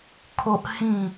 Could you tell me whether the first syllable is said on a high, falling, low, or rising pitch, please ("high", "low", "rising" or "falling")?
high